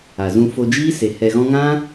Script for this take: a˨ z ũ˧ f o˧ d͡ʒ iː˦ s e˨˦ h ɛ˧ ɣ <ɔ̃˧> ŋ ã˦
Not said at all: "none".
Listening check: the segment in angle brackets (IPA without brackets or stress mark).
ɔ̃˦